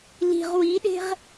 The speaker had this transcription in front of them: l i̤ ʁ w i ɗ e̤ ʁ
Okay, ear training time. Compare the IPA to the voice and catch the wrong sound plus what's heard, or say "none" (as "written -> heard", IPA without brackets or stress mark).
none